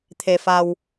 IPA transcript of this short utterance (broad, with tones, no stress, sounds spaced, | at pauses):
t̪ʰ e˧ f a˧ w